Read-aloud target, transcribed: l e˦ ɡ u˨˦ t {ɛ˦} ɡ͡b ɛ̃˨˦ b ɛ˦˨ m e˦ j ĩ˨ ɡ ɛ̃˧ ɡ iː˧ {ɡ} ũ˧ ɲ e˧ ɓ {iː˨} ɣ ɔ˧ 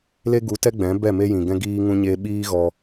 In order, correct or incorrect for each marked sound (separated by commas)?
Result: correct, incorrect, incorrect